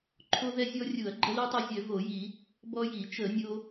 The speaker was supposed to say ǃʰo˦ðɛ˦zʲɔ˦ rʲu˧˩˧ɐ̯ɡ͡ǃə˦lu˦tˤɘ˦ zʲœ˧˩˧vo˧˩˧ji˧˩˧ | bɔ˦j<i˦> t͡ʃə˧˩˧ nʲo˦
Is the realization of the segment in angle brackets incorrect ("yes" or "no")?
yes